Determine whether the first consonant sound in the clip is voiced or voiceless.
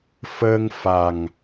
voiceless